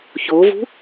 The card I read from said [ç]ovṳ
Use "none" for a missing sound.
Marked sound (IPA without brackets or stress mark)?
ç